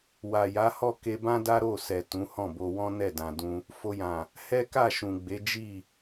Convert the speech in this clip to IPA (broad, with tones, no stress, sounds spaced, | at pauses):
w a˨ j a˨˦ h ɔ˦˨ k e˧ b ã˦ d a˦ ɾ o˦˨ s ɛ˨ t ũ˨˦ h ɔ̃˦˨ b o˧ w ɔ̃˦ n ɛ˦˨ d ã˨ d ũ˧ | f o˧ j ã˨ | h ɛ˦ k a˦˨ ʃ ũ˨ ɡ͡b e˨˦ d͡ʒ i˦˨